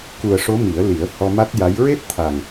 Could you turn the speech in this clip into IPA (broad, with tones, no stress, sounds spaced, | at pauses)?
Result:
k u˨˩ ə̯ ʂ o˧˥ m i˨˩˦ ə̯ l i˨˩˦ ə̯ h ɔ˧ m a˦˥ t̚ j a˧˥ j ɹ e˦˥ t̚ t̪ʰ a˨˩ ŋ